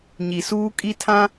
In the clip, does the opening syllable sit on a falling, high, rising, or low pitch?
low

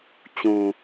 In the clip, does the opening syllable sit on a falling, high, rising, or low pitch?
low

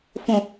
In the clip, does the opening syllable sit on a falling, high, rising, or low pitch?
low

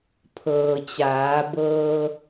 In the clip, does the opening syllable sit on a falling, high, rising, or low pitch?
low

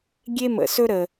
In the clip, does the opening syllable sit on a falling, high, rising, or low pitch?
high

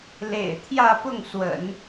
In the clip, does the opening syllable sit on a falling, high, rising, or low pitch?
low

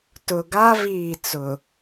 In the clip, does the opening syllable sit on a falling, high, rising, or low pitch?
low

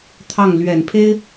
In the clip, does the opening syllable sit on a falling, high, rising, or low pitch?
falling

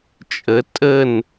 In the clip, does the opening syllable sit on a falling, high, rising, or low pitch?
rising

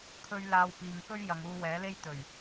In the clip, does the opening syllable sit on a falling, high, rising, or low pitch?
high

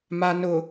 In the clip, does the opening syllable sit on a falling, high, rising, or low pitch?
low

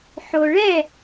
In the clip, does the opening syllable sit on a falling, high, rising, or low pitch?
low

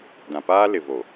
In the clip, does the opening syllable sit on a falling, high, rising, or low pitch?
low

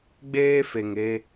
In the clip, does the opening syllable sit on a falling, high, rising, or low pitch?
high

